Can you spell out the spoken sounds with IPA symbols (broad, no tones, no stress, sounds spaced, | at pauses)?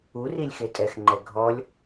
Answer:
u r i lʲ x e tʼ ɛ x ŋ͡ǃ ɛ ɡʱ ɔ lʲ